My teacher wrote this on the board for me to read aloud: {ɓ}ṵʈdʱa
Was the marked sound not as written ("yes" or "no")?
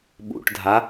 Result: no